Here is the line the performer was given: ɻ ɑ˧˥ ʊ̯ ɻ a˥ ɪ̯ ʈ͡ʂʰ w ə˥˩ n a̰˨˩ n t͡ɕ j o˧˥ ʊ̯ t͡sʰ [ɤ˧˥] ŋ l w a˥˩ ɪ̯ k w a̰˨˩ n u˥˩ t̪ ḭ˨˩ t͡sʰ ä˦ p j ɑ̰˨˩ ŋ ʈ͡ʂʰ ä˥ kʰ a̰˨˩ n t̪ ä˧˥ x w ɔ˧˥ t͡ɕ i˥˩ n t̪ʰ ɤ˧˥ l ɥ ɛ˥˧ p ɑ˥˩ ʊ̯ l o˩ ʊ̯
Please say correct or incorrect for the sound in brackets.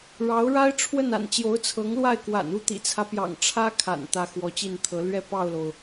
correct